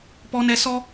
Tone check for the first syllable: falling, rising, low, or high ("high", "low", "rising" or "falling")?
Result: high